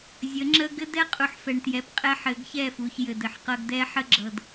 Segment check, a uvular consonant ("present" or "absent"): present